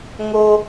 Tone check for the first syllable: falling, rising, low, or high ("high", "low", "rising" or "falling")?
low